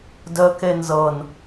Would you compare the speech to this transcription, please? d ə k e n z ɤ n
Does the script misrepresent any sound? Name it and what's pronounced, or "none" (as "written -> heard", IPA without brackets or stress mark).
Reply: none